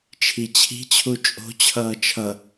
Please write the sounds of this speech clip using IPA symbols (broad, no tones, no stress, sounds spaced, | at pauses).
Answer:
t͡ʃʰ i t͡ɕʰ i̤ t͡ɕʰ u t͡ʃʼ o̤ t͡ɕʰ ʌː t͡ʃʰ ʌ